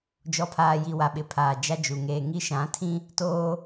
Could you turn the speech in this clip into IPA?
d͡ʒ ɔ˨ pʰ aː˨ j i˨ w a˨ ɓ ɪ˨ pʰ aː˨ d͡ʒ a˦ d͡ʒ u˨ ŋ eː˨ ŋ i˦ ʃ ã˨˦ tʰ ĩ˦ | t oː˦

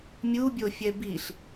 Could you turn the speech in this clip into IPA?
mʲ u bʲ o fʲ ɛ b i ɬ

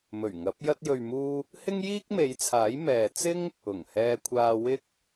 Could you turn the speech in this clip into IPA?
m ɵ˨˩ ɥ ŋ ɐ˨˥ p̚ j ɐ˧ t̚ j ɵ˨ ɥ m uː˧ | h ɪ˥ ŋ j iː˥ k̚ m e˨˧ j t͡sʰ aː˨˥ j m ɛː˨ t͡s ɪ˥ ŋ | ʊ˨˩ ŋ h ɛː˧ kʷʰ aː˧ w ɪ˧ k̚

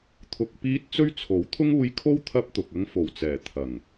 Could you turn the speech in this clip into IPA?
t̪ʰ ʊ˧ k̚ p iː˥ t̚ t͡s ɵ˥ ɥ t͡sʰ o˨˥ w t̪ʰ ʊ˥ ŋ uː˧ j kʰ o˥ w t̪ʰ ɐ˧ p̚ t̪ ʊ˨ k̚ ɐ˧ ŋ f o˨˩ w t͡s ɛː˨˩ t̪ʰ ɐ˨˩ ŋ

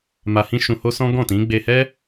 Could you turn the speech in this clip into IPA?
m a˧ h ĩ˦ ʃ ũ˧ h o˦ s ɔ̃˦ ɡ ɔ̃˦˨ t ĩ˨˦ ɡ͡b e˧ h ɛ˦

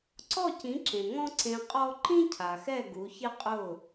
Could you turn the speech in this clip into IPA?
ǀ ɔ˥˩ c ĩ˩˥ ǁ ẽ˩ ŋ ɔ̃˥ ǀ ẽ˧ qʼ ɔ˥ ǃ ĩ˥ cʰ a˩ x ɛ˥˩ ɡ u˩˥ ç ɪ˥ qʼ ʊ˥˩

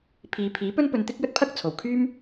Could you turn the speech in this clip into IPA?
pʰ iː˨˧ pʰ iː˨˥ p ɵ˥ n p ɵ˧ n t̪ ɪ˥ k̚ j ɵ˥ t̚ pʰ ɐ˥ k̚ t͡sʰ o˨ w kʰ yː˥ m

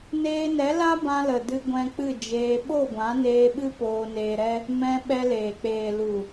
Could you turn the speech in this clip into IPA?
n eː˧ n ɛ˨˦ l a˦ b ã˧ l ə˨ d ɨ˧ ɡʷ ɛ̃˧ k͡p ɨ˦˨ d͡ʒ eː˧ ɓ o˦˨ ɡʷ ã˨˦ n eː˧ ɓ ɨ˦ p oː˧ n eː˧ ɾ ɛ˦ | m ɛ̃˧ ɓ ɛ˧ l eː˨ k͡p eː˨ l u˨

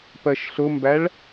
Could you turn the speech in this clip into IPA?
p ɜ ʃ ɬ ʊ m b æ ɭ

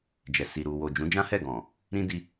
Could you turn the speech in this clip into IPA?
d͡ʒ ɛ˨ s i˨ ɾ u˨ w o˨ d͡ʒ ũ˨˦ d͡ʒ ã˦ h ɛ˦˨ ɡ ɔ̃˨ | ɾ ĩ˧ d i˧

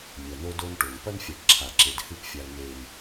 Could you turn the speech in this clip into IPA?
mʲ ɐ˨ n o˦ d o˦ n ʈ o˨ n p ɐ˦ n fʲ a˨ ʈ ǁʰ a˨ ǁ e˨ d h ɨ˦˨ p fʲ a˨ l n e˨ n

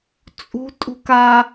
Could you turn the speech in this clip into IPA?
t͡sʼ ṳ tʼ ṳ k a

